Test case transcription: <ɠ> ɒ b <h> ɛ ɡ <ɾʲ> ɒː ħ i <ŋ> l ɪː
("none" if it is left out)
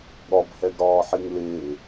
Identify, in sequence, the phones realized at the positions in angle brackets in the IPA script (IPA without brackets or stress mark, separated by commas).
ɠ, h, ɾ, ŋ